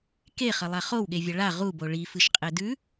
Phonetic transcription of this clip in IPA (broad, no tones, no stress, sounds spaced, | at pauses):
k e χ ɐ lˠ a χ o w ɠ e vʲ ɐ ɭ a ʁ u b o ɭ i f ɨ ʃ qʼ e d ʉ